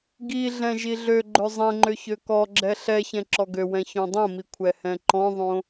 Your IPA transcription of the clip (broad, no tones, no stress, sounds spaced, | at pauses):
ɡ i ɮ ɛ̃ ʒ i ɮ ø ɡ͡ǃ ø zˤ ɛ̃ ŋ͡ǃ ø ç ø k ɔ ɡ͡ǁ ɛ ɬ ɛ ç ɛ̃ ǁ ɔ ɡ ø w ɛ̃ ç õ dˤ õ m i kʷʰ ɛ h ɛ̃ ǃ ɔ̃ ðˤ õ